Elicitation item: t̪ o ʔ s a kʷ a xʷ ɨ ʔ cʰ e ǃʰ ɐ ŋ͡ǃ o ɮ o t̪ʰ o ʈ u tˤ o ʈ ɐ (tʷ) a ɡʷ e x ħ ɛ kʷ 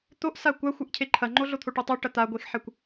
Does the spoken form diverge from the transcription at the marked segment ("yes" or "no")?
yes